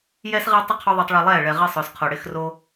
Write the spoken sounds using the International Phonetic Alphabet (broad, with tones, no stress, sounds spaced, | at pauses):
j ɛ˦ s ʁ ɛ˦ tˤ ʊ˦ qʰ o˦ ðˤ u˧ tˤ ɭ i˧ lˠ ɛː˦˨ ɭ ɛ˨ ʁ ɪː˧ sˤ ʊː˨ s qʰ o˨ ɽ ɪː˦ x r o˦